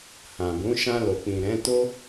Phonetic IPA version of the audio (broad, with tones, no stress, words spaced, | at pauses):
hã˨bũ˨˦ ʃã˧lo˨k͡pĩ˨ ɾɛ̃˨˦ to˦